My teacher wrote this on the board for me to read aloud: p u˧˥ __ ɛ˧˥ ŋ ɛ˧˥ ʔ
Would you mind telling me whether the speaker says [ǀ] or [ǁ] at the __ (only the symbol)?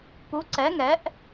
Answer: ǀ